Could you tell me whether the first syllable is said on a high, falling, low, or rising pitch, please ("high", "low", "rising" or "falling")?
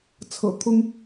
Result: low